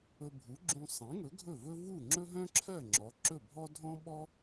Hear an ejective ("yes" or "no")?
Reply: no